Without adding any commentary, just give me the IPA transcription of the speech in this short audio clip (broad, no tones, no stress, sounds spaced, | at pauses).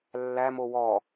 lː æ m o w ɔ